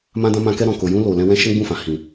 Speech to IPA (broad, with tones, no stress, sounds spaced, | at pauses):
m ã˧ d ã˧ m ã˧ k ɛ˧ ɾ ɔ̃˨ k o˨ j ũ˧ l o˨ l ɛ̃˧ w ɛ̃˦ ʃ ɛ̃˦ ɡ͡b ũ˦˨ f ã˨ h ĩ˨